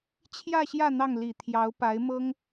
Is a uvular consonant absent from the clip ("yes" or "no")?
yes